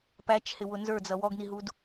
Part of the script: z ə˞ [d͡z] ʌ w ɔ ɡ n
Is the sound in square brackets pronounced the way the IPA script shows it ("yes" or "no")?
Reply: yes